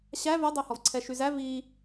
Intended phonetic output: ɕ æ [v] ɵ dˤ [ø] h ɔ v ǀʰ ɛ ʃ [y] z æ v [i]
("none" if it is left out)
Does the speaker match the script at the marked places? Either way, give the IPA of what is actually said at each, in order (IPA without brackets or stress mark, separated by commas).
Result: v, ø, y, i